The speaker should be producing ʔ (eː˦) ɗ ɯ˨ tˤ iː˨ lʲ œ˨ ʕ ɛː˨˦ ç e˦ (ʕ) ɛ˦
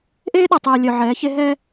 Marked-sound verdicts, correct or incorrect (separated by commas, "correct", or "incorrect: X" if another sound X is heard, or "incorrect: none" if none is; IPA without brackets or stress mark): correct, incorrect: ɦ